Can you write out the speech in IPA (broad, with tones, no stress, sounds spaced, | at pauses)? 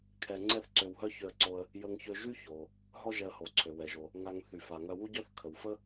kʰ ɛ˧ ŋ͡ǀ ɛ˥ θ ǀ ø˧ w ɦ œ˥ ç ø˧ ə̯ ǀ o˧ ə̯ | j ə˧ ŋ ç ø˧ ʒ y˥ ç o˩ | ɦ ɔ˥ ʒ ɛ˧ ə̯ h o˩ ǀʰ ø˩ w ɛ˩ ʒ o˩ | ŋ a˧ ŋ θ y˩ f a˩ ŋ œ˧ w u˥ ɟ œ˥ θ kʰ ə˩ w f ə˥